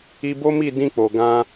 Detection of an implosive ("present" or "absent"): absent